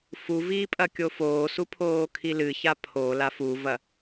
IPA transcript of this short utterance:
f u v iː pʼ ɐ kʲ o f oː s u pʰ oː kʰ i l ɨ ç a pʰ o l a f u v ɐ

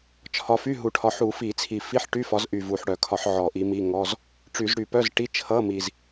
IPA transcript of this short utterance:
t͡ʃʰ ɒ˨˦ f y˧˥˧ ɦ u˨˩ ʈʰ ɒ˨˦ ħ u˧˩˧ f i˧˩˧ t͡sʰ i˨˩ f i˧˥˧ ħ ʈ y˧˥˧ f ɒ˨˦ z ʔ y˨˩ v u˨˩ ħ ɽ œ˧˩˧ kʰ ɒ˧˩˧ ħ ʕ ɔ˧˩˧ ʔ i˨˦ m i˧˥˧ ŋ ɔ˧˥˧ z | ʈ͡ʂ y˧˩˧ z ɽ y˧˩˧ p œ˧˥˧ z ʈ i˧˥˧ t͡ʃʰ ʌ˧˥˧ m i˨˩ z

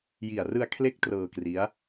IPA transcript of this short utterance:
j i˨˩ a̯ r ɯ˧ a̯ kʰ l e˦˥ k̚ t r ɤː˧ k r i˦˥ a̯

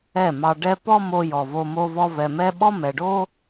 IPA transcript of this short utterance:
ɛ˦˨ m ɑ˧ ɖ ɛ˦ p ɔ˦ m o˧ j ɔ˨ v o˧ m o˧ v ɔ˧ v ɛ˨ m ɛ˦ ɓ ɔ˦ m ɛ˨ ɖ o˦

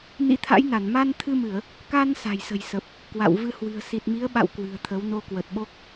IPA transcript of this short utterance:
n ḭ˧˥ t̪ʰ a̰˧˥ j n a˧˩ n m a˧ n t̪ʰ ɨ˧ m ɨ˧˩˨ ə̯ | k a˧ n s a̤˨˩ j s ə̤˨˩ j s ə˨˩ p̚ | k w a̰˧˨ w v ɨ˧ h w ɨ̤˨˩ ə̯ s i˨˩ t̚ m i˨˦ ə̯ ɓ a̰˧˨ w k w ɨ̤˨˩ ə̯ t̪ʰ ə˨˦ w n o˧ k w ə˨˩ t̚ ɓ o˦˥ k̚

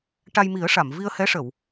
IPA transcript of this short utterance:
ʈ a˧ j m i˨˩˦ ə̯ ʂ a˨˩˨ m v i˧ ə̯ h ɛ˧˥ ʂ ə˨˩˨ w

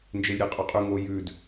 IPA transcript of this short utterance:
n d͡ʒ e lʲ ɾʲ e qʼ o qʼ ʉ ŋ o j ʉ d

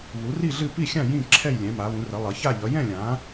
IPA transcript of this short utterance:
β u˨˦ r i˥˧ ɮ ɨ˥˧ p i˥˧ xʲ ã˥˧ j ĩ˥˧ ǁʰ ɛ˥˧ j lʲ ɛ̃˨˦ m a˨˦ β ũ˨˦ r ə˨˦ lˠ ʌ˨˦ ç a˥˧ ʎ ʌ˨˦ j ɛ̃˥˧ lʲ ã˨˦

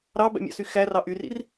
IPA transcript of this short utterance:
ɾ ɑ b æ̰ mʲ ɑ̰ s y x æ r ɑ ʔ y r ḭ r

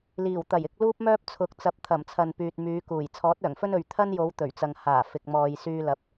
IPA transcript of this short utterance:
l iː˨˩ w t̪ ɐ˨˩ j ɪ˧ k̚ l uː˥ p̚ m œː˥ p̚ t͡sʰ ʊ˨˥ k̚ t͡s ɐ˨˥ p̚ t̪ʰ ɐ˨˩ m t͡sʰ ɐ˨ n p yː˨ t̚ m yː˨˧ k uː˨˩ j t͡sʰ ɔː˨˥ t̚ œː˨˩ ŋ f ɵ˥ n ɵ˨ ɥ t̪ʰ ɐ˥ n j o˨˧ w t̪ ɵ˨˩ ɥ t͡s ɐ˨ ŋ h aː˨˩ f ɪ˨ k̚ m ɔː˨ j s yː˧ l ɐ˨ p̚

